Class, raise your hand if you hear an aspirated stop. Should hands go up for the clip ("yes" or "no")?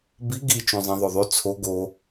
yes